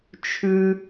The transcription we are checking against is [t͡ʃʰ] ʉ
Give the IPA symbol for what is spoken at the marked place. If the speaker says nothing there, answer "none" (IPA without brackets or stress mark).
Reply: t͡ʃʰ